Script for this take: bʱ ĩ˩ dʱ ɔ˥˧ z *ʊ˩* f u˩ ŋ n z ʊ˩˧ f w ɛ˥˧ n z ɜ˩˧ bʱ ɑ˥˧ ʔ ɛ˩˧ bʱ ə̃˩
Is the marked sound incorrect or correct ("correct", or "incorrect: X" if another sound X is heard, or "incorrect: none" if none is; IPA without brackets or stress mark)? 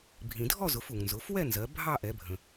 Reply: incorrect: ʊ˩˧